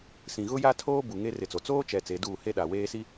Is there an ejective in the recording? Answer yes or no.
no